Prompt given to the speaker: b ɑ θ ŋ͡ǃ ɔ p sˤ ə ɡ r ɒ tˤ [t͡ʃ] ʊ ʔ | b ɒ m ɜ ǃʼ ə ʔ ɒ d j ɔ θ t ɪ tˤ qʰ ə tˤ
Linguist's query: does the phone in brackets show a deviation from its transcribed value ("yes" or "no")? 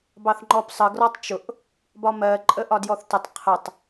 no